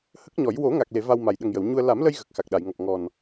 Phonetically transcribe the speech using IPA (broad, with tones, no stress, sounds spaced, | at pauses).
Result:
h ə˦˥ k̚ ɲ ɔ˨˩˦ j w o˨˩˦ ŋ a˨˩ k̚ l e˨˩˨ v a˧ w m a˨˩ j ɗ ə˨˩ ŋ j ə˨˩˨ w ɲ u˧ ə̯ l a˨˩˦ m l ə˧ j ɣ ə˨˩ k̚ x a˨˩ k̚ ɗ a˨˩˨ j ŋ ɔ˨˩ p̚ ŋ ɔ˨˩ n